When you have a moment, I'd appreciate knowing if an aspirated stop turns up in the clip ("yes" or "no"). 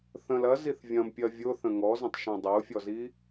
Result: no